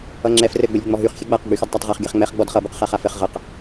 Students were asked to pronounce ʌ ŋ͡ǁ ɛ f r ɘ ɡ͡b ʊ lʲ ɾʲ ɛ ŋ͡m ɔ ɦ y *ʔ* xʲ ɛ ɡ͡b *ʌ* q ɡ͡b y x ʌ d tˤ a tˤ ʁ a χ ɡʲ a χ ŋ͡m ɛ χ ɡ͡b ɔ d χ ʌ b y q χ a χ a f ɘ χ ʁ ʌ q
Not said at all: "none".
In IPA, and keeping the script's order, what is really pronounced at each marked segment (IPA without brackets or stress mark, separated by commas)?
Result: χ, a